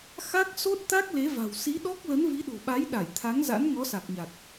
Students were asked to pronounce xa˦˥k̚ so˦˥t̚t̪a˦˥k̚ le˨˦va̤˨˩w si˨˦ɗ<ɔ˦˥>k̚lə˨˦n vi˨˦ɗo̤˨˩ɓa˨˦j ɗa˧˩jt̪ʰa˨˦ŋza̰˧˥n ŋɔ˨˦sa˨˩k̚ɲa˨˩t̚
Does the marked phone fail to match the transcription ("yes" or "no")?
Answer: no